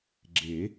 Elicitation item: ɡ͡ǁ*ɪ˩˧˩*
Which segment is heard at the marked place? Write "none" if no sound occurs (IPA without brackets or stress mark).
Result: ɪ˨˩˦